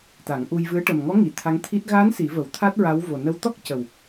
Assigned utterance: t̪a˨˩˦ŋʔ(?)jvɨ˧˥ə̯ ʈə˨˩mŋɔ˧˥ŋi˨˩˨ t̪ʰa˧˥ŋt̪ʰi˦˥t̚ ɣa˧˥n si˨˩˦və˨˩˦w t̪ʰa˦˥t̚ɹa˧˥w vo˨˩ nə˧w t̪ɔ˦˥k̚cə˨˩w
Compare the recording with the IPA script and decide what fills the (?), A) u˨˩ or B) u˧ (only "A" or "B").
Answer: B